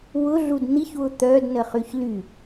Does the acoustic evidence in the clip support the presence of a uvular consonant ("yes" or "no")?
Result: yes